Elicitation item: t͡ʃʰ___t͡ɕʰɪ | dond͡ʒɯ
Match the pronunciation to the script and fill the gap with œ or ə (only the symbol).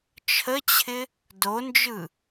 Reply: ə